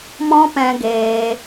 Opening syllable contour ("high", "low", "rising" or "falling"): high